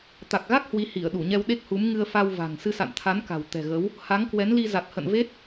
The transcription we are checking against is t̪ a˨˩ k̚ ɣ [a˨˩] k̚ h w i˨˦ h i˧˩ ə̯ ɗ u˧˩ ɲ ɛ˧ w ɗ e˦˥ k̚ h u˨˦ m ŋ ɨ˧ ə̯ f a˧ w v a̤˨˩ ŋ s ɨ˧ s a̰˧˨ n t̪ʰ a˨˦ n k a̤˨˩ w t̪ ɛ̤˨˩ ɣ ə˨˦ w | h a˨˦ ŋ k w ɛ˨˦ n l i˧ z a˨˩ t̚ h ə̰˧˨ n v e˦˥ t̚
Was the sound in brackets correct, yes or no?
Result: no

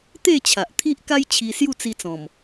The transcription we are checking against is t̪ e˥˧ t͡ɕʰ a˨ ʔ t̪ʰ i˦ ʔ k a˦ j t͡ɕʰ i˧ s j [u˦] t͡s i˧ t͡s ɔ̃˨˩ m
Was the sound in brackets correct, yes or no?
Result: no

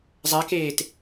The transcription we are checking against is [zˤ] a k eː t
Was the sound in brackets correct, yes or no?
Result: yes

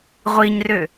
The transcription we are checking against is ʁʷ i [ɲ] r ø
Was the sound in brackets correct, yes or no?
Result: yes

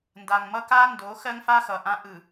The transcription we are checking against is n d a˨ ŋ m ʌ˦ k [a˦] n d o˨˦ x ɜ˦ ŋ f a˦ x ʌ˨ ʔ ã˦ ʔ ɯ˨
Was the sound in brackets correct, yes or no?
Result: yes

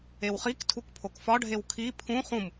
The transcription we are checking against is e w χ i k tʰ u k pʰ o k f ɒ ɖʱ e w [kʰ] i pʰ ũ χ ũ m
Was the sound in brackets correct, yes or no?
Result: yes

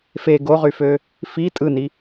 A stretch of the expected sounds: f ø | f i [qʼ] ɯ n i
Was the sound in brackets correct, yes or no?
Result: no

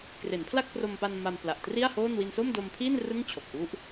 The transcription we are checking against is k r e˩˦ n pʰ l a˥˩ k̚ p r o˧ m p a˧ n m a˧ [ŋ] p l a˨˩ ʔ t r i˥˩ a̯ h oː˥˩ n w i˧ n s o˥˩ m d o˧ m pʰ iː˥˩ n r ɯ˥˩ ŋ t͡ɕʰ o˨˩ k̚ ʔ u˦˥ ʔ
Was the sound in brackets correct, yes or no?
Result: no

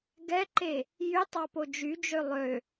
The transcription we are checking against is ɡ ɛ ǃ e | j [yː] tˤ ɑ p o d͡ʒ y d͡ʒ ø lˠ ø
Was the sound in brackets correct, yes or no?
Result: no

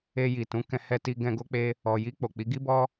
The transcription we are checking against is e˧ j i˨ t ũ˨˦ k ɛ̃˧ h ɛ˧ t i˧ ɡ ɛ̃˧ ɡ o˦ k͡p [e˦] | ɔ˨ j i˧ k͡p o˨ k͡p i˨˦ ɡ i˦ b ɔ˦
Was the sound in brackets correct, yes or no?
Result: yes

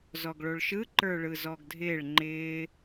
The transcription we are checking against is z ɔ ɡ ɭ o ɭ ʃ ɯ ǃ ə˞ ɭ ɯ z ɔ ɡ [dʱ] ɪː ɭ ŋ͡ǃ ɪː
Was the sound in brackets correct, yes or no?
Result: yes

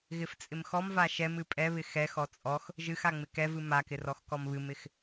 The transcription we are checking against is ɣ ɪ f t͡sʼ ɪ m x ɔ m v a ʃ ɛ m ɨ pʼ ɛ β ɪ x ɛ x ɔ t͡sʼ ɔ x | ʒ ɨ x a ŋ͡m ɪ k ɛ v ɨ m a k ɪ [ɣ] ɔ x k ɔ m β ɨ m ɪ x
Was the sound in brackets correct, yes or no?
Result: no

